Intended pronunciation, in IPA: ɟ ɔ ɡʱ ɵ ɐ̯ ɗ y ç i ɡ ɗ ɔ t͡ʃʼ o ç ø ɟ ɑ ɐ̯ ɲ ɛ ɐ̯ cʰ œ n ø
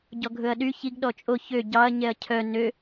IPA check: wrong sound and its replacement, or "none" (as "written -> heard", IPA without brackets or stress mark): none